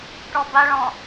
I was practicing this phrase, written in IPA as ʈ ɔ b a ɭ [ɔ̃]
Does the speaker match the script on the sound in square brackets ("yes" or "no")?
yes